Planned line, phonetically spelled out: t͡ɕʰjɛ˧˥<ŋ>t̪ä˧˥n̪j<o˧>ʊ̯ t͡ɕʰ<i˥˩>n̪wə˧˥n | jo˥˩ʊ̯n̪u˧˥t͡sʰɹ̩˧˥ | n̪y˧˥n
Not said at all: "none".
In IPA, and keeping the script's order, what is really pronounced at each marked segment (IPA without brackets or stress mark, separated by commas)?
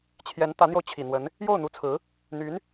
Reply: n, o˧, i˨˩